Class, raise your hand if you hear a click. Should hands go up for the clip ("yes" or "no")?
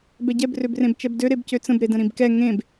no